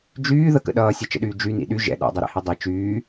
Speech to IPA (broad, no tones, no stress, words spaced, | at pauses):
d͡ʒyː ðəkə̰ ɗʌːsʲɛt͡ʃə̰ɗyː d͡ʒynḭ ɗy ʒɛ̰ ɗa̰dˤɛɾɛ̰hi dˤi t͡ʃyː